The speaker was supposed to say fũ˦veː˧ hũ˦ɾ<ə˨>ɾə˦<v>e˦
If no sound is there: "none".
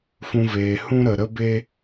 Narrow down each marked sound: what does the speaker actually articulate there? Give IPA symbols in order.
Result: ə˨, b

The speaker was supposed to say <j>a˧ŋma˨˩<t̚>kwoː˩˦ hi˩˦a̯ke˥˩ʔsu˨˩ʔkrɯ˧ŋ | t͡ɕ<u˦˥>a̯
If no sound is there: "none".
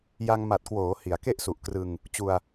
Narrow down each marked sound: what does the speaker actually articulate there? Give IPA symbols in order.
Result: j, t̚, u˧

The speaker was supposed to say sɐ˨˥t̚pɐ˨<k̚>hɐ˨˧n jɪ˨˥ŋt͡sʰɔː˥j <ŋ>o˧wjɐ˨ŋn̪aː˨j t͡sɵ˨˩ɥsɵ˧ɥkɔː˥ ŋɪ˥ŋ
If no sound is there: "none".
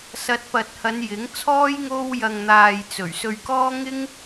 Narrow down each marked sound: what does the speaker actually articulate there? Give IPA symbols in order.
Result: t̚, ŋ

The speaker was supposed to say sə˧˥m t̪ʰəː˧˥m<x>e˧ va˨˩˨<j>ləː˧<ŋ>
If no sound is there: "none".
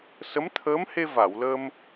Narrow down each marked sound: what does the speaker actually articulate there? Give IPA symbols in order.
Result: h, w, m

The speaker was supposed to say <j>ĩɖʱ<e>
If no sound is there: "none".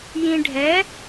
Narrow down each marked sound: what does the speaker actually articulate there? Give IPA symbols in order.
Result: j, ɛ

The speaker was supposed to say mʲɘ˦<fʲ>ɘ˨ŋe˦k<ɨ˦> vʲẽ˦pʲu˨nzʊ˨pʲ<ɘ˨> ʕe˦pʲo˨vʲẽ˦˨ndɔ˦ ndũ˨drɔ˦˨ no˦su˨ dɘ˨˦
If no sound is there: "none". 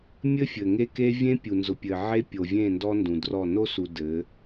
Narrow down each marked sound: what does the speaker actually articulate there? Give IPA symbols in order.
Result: fʲ, e˦, ɘ˨

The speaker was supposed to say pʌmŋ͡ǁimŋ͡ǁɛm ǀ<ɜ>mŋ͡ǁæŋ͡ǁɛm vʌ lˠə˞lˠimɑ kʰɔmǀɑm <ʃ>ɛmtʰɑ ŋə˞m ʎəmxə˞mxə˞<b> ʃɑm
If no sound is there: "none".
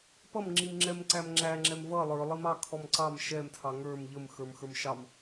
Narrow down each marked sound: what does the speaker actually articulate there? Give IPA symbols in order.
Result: æ, ʃ, m

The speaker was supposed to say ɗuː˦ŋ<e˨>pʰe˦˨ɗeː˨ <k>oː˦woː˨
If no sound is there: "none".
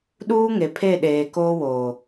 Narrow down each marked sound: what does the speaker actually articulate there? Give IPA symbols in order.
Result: e˨, k

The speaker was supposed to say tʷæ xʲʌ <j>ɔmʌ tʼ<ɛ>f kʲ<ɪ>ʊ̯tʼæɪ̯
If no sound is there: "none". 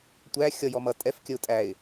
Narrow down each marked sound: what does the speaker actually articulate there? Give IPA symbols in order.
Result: j, ɛ, ə

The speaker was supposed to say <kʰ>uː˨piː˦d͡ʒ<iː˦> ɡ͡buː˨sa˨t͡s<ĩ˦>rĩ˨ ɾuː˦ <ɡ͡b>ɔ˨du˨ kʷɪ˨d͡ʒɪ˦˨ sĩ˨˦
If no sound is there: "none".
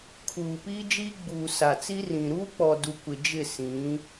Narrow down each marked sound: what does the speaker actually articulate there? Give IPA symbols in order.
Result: kʰ, iː˦, i˦, k͡p

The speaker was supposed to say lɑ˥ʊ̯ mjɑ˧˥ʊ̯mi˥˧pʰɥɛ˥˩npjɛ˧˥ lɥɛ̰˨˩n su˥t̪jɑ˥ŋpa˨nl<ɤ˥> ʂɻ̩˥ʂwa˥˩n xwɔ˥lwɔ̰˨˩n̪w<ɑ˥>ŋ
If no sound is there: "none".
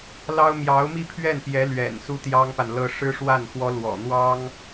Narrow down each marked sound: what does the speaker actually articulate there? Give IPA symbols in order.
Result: ɤ˥, ɑ˥

